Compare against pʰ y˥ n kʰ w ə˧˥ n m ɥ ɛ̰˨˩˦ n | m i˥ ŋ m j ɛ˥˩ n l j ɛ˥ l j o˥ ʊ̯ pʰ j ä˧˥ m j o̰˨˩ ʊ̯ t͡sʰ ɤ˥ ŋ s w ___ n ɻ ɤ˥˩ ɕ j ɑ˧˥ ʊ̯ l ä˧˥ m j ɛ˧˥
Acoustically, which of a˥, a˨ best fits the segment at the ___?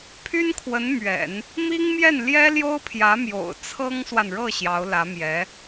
a˨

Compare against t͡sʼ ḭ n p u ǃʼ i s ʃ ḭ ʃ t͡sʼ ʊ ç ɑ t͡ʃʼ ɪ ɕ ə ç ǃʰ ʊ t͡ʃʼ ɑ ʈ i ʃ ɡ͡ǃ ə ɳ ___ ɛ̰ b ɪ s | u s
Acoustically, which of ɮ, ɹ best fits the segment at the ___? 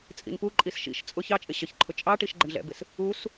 ɮ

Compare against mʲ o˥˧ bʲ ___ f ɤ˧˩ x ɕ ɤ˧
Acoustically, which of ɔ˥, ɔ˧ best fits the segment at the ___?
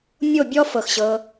ɔ˥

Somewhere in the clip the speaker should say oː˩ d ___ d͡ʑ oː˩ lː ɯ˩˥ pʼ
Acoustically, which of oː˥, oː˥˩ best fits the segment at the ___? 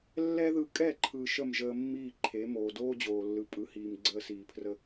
oː˥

